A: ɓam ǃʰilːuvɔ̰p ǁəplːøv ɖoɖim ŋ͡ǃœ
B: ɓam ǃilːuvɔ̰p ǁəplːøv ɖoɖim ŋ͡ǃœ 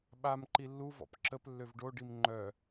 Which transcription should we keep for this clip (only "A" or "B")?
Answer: B